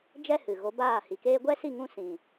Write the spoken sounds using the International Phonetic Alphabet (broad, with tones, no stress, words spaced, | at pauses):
d͡ʒɛ˦ hɨ˨ ɣo˨˦baː˦˨hi˨keː˦ ɡʷɛ˦si˦˨ŋũ˧ sĩ˨